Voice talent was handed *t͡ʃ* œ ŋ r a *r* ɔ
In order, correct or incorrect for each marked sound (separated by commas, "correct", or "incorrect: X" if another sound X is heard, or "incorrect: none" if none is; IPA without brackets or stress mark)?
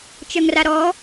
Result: correct, incorrect: ɾ